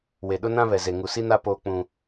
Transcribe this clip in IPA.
w e˨ ɗ ʊ˦ n ã˦ β ɛ˨ z e˨ ŋ u˨ s i˦ n a˦ p oː˦ k͡p ũ˦

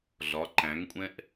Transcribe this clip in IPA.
ɮ ɒ ǃ æ̃ ŋ kʷʼ ɛ̃ ʔ

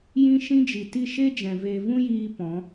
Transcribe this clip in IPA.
j ĩ˦ ʃ ĩ˦ d͡ʒ i˨ t i˦˨ ʃ e˦ d͡ʒ ɛ̃˨ v e˧ v ũ˦ j iː˧ p ɔ̃˨˦

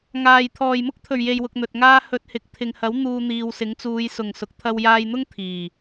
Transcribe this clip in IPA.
ŋ aː˨˩ j t̪ʰ ɔː˨˩ j m ʊ˥ k̚ t̪ʰ ɵ˨˩ ɥ j e˨ j w ʊ˨ k̚ n̪ ɵ˨ t̚ ŋ aː˥ h ɵ˨ t̚ h ɪ˨ k̚ t̪ʰ ɪ˨ ŋ h ɐ˨˥ w n̪ uː˧ n̪ iː˨ w s ɪ˨˥ ŋ t͡s uː˨˧ j s ʊ˨˩ ŋ s ʊ˨ k̚ t̪ʰ ɐ˧ w j aː˧ j n̪ ʊ˥ ŋ t̪ʰ iː˨˩

